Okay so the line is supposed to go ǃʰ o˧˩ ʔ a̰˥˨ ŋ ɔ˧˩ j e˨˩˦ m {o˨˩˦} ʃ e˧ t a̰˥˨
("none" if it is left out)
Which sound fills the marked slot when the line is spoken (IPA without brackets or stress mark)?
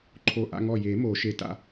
o˨˩˦